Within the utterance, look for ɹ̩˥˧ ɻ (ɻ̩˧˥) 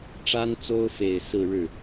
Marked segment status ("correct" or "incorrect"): incorrect